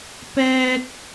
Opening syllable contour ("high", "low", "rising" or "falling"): high